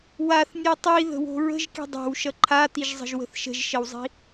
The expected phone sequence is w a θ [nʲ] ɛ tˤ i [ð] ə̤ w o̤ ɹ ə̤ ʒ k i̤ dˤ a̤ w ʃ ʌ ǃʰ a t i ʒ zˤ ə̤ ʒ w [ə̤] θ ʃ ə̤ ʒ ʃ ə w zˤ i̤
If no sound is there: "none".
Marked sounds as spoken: nʲ, ð, ə̤

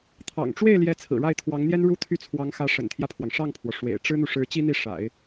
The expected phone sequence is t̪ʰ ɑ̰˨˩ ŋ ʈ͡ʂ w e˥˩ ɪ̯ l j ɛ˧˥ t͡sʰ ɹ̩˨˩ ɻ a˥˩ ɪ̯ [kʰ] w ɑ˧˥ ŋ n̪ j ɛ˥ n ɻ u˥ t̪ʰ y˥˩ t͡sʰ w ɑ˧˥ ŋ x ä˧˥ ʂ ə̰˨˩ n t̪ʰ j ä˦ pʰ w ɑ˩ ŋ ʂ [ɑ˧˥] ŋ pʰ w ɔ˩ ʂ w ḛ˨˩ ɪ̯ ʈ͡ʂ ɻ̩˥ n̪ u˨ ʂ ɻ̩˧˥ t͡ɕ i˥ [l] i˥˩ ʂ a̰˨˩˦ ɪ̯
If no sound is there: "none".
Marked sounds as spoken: t̪ʰ, ɑ˥˩, n̪

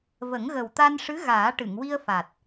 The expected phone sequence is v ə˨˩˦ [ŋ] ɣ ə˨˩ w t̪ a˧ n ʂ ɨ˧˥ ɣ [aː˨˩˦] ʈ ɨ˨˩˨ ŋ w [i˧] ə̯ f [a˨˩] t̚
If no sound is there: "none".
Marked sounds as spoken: ŋ, aː˨˩˦, i˧, a˨˩

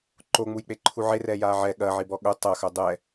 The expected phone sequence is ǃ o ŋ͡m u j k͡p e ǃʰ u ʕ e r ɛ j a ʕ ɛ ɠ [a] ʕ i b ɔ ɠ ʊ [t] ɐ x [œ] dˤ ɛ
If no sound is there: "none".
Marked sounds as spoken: ɐ, tˤ, œ

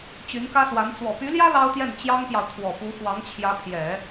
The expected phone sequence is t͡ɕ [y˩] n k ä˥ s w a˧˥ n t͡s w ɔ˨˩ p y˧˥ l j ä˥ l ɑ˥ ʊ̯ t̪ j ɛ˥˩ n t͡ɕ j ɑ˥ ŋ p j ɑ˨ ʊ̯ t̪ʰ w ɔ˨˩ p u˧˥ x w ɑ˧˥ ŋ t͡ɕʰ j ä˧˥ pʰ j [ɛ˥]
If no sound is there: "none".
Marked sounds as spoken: y˧˥, ɛ˨˩˦

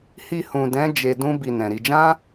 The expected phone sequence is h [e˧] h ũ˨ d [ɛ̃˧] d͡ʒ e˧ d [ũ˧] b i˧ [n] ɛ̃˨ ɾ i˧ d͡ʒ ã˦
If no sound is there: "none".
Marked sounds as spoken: i˧, ɛ̃˨˦, ũ˦, n

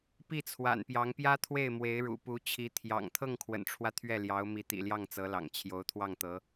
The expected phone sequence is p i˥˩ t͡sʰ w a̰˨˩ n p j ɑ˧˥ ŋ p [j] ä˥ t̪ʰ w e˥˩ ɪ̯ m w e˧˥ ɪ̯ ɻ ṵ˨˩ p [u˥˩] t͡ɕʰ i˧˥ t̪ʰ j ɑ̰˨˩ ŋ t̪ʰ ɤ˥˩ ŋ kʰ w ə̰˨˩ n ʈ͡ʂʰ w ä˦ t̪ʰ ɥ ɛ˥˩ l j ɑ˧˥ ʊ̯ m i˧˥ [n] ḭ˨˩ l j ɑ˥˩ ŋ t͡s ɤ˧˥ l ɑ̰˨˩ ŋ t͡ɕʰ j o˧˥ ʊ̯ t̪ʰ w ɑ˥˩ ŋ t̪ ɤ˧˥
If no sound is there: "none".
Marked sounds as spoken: j, u˧˥, t̪

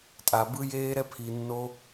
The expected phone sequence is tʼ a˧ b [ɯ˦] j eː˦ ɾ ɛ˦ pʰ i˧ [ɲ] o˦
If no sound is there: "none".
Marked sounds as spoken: ɯ˦, nː

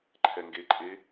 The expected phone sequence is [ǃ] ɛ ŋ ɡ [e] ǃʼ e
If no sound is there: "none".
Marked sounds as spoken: ǃʰ, e

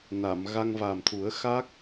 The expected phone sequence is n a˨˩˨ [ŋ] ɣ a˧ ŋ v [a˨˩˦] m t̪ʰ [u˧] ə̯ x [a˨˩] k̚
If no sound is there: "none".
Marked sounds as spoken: m, a˨˩, u˨˩˦, a˦˥

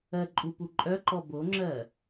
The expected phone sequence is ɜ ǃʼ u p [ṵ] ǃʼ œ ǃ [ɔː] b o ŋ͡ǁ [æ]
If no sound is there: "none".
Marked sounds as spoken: u, ɔ, ɜ

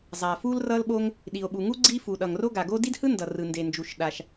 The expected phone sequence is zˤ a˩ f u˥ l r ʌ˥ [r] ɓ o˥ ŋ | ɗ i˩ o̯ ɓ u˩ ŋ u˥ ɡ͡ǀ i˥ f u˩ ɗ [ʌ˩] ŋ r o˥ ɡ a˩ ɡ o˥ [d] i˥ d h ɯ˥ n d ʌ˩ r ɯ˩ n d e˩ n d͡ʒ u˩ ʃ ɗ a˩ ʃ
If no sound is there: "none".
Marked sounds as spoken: l, ʌ˩, d

